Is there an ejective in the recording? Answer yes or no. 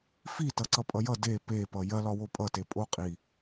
yes